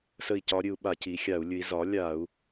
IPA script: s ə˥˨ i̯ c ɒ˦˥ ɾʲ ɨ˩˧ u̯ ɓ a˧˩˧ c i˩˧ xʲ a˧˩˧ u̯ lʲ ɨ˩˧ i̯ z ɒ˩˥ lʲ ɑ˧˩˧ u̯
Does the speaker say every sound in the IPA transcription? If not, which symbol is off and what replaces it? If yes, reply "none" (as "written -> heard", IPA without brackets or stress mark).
ɑ˧˩˧ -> a˧˩˧